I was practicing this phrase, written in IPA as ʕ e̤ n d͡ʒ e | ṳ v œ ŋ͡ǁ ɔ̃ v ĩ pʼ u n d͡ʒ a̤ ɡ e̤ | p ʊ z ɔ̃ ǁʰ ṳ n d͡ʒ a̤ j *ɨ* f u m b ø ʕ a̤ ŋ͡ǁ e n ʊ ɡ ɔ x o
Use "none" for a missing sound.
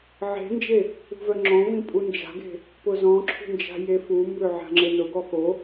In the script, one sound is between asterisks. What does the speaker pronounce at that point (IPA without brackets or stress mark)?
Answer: e